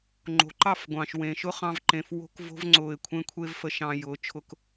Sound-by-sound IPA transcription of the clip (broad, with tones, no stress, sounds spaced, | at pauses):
ŋ͡ǃ o̤˨ ǃ ɑ˦˨ f ɡʷ ɑ̃˨ ʃ w ẽː˨ ʃ ʊ˦ χ ɑ̃˧ v ǃ ẽ˨ f w o̤˧ k v o̤˧ v ŋ͡ǀ ʊː˨ ɪ̯ kʷʰ ẽ˦ kʷʰ e˦ v f ə˧ ʃ ɑ̃ː˧ j ʊː˨˦ t͡ʃʰ ʊ˦ k